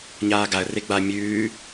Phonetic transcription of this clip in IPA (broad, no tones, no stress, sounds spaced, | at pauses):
ɲ aː ɡ a ə̯ r e ɡ͡b a mʲ ʉː